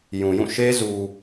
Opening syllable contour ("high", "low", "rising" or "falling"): low